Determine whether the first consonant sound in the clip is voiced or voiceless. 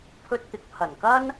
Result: voiceless